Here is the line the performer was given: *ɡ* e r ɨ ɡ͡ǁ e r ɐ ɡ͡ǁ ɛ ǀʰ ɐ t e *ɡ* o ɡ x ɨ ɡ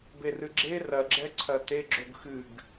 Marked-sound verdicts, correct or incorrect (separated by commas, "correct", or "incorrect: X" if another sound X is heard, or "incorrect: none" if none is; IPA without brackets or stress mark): incorrect: b, incorrect: ɡ͡ǁ